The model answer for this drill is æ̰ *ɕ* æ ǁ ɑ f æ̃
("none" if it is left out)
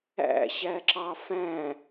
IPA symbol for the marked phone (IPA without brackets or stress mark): ɕ